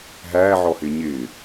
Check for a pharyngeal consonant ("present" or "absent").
present